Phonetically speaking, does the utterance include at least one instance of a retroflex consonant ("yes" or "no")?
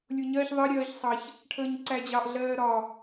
yes